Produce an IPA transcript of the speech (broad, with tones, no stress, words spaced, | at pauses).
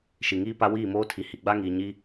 ʃi˨ŋiː˦ pa˦wiː˦˨moː˦ tʰi˨hi˨ɡ͡ba˦ŋiː˨ ɲi˦